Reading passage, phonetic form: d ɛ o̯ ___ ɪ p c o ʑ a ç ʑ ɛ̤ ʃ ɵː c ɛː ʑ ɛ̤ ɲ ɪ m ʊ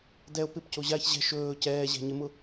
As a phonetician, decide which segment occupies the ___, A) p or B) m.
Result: A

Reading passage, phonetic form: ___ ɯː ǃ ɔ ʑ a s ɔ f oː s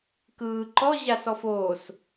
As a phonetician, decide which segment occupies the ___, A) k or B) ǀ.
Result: A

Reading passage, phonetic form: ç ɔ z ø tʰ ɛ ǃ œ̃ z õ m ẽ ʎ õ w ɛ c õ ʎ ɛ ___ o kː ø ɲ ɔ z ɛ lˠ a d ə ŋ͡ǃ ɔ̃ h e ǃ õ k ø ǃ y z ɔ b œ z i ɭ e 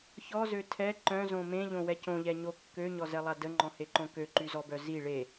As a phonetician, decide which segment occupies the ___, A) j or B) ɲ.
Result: B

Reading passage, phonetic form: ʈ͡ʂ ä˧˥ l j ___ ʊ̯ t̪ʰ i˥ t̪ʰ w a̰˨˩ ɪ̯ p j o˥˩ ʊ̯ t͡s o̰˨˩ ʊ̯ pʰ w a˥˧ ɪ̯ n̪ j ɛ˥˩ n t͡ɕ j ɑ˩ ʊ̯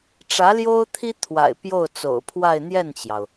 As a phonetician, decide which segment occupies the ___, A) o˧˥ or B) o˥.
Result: B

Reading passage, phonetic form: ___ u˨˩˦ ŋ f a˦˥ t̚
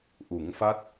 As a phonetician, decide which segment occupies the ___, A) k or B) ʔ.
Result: B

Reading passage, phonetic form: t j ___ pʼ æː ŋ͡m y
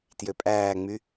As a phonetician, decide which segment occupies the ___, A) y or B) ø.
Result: B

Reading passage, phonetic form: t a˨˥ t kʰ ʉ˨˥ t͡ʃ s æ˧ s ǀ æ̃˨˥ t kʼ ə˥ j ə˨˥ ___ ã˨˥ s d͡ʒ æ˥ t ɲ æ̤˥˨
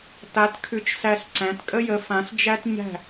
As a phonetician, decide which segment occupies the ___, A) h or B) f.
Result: B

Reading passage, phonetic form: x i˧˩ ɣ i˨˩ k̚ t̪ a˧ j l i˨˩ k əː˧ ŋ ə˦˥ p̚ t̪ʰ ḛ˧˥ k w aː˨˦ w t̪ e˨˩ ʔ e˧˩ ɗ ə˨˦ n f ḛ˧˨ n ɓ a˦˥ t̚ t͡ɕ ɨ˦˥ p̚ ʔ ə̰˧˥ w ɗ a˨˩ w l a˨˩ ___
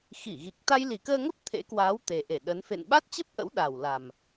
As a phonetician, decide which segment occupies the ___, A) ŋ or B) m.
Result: B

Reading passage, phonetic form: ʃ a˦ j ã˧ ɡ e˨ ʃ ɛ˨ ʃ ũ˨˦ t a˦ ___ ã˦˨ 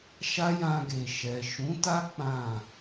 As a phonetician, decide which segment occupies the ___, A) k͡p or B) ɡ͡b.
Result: A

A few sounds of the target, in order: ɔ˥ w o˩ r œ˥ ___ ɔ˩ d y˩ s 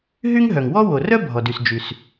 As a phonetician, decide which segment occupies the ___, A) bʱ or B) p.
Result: A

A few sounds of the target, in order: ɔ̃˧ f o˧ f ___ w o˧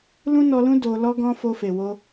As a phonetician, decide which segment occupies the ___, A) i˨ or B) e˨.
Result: B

